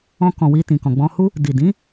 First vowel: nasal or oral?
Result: nasal